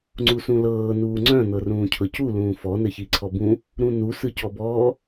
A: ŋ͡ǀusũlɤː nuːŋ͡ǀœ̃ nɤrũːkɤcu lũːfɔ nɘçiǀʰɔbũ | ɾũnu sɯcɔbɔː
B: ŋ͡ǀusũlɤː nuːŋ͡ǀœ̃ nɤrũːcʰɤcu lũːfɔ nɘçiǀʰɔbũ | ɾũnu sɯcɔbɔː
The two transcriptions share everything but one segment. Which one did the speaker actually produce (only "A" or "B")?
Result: B